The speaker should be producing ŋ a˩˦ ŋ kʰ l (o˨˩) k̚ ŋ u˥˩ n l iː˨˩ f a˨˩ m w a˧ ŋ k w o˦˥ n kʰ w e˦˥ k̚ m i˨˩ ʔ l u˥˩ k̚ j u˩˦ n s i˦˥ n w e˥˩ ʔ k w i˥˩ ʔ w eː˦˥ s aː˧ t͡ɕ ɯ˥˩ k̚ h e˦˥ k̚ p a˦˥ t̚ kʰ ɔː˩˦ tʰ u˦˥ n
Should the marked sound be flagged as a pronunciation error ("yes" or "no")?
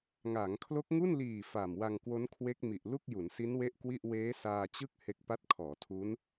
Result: yes